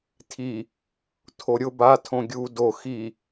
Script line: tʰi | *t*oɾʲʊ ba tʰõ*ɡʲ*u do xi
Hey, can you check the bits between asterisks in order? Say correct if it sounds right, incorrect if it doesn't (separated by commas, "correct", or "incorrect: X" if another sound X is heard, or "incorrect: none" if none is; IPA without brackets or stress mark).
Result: incorrect: tʰ, correct